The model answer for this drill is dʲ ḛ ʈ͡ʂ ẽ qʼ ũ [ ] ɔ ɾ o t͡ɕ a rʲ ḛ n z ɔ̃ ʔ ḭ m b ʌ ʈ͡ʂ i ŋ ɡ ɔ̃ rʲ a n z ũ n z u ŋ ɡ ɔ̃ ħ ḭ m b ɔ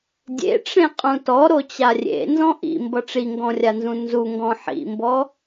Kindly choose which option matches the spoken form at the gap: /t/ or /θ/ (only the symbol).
t